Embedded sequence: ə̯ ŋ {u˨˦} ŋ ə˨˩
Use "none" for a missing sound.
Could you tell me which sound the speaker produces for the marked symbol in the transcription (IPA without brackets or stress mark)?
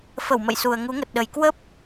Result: u˨˦